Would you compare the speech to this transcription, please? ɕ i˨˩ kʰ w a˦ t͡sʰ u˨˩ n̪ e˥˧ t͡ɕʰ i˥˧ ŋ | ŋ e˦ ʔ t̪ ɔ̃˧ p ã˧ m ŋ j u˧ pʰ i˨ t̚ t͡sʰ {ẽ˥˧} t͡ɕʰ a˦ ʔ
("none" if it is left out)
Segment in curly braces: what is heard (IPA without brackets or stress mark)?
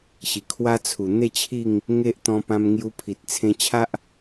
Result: ẽ˧